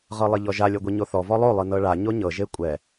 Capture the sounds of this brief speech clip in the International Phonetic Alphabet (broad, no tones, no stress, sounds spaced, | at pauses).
ʁ ɤ lˠ i ʎ ɔ ʒ a lʲ ɤ ɡʷ i ɲ o θ ɔ v ɔ lˠ o lˠ ɯ n ɤ ɭ a ɲ o ɲ ɤ ʒ e kʷʼ ɛ